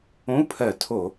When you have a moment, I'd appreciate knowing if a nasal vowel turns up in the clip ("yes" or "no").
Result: yes